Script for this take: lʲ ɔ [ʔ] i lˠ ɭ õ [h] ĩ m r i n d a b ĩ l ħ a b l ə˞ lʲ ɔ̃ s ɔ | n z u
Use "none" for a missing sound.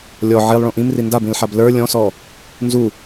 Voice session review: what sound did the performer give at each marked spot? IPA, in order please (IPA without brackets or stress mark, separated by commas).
ʕ, ʔ